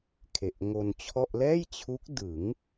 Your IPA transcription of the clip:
kʰ e˨˩ ʔ ŋ o˧ n t͡ɕʰ ɔ˥˩ ʔ l ɛː˥˩ j t͡ɕʰ u˦˥ k̚ d ɯ˩˦ ŋ

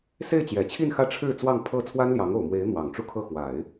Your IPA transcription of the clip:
s e˥˩ ɪ̯ t͡ɕ j ɛ˨˩ t͡ɕʰ i˥˧ n x ä˥˧ ʈ͡ʂʰ ɻ̩˥˧ t͡s w ɑ˥˧ ŋ pʰ ɤ˥˩ t͡sʰ w a˥ n l j ɑ˧˥ ŋ o˨˩ ʊ̯ m w e˧˥ ɪ̯ n̪ w ɑ˨˩ ŋ ʈ͡ʂ u˥ kʰ ɤ˥˩ x w a˨˩˦ ɪ̯

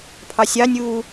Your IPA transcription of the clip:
pʰ ɑ sʲ ɑ nʲ uː

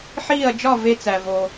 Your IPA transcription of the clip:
ħ iː˥˧ ɐ̯ d͡ʒ ɒ˥˧ v e˥ t͡s æ˧ v o˧

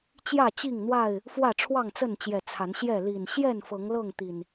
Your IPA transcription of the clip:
t͡ɕ j ä˥˨ t͡ɕ i˥˨ ŋ n̪ w a˥˨ ɪ̯ | f w ä˥˨ ʈ͡ʂʰ w ɑ˥˨ ŋ t͡s ə˥˨ n t͡ɕ j ɛ˨˩ t͡sʰ a˨˦ n ɕ j ɛ˥˨ l i˨˩ n ɕ j ɛ˥˨ n f ɤ˨˦ ŋ l ɤ˥˨ ŋ t̪ i˨˩ n

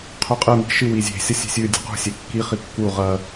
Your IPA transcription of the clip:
qʰ ʉ qʼ ɨ m i̤ ʃ ɨ w i zʲ e̤ sʲ ɐ sʲ e̤ sʲ ʉ dʲ ṳ q ṳ sʲ e kː i χ i kː u ʁ ɐ

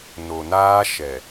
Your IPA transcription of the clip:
n o˨ n aː˦ ʃ ɛ˨

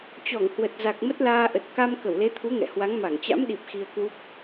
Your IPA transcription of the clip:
t͡ɕ ɔ˧˩ ŋ h w ə˨˩ t̚ z a˨˩ k̚ m ə˦˥ t̚ l aː˧ ʔ ə˨˩ t̚ k a˧ m k ə˧˩ w l e˨˦ t̪ʰ u˨˦ ŋ ɛ̰˧˨ h w a˨˦ ŋ m a˧˩ ŋ t͡ɕ a̰˧˥ m ɗ i˨˩ p̚ x i˧ ə̯ k w u˦˥ p̚

